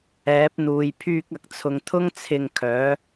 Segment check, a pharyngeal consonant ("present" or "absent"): absent